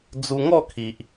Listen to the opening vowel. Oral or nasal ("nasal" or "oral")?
oral